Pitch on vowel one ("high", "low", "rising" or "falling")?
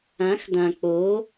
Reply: rising